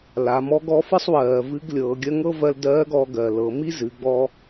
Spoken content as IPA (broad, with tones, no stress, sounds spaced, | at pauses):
l a˩˧ m ɔ˧˥ ɡ ɔ˧˥ f ɨ˥ sˤ w ɜː˩ v ɨ˧˥ ɡ lʲ ɤː˩˧ ɡʲ ɜ˥ ŋ ɤ˥ v ɜ˧ l d ɜː˧˥ ɡ ɔː˧ ɡ ɜ˩ l ɤ˩˧ m i˥ z ɨ˩˧ ɡ͡b ɔ˧